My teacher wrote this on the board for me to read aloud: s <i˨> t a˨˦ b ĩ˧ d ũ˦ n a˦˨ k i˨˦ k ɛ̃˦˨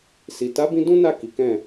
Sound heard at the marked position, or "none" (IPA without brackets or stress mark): i˨